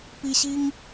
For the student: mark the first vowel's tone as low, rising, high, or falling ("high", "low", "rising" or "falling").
high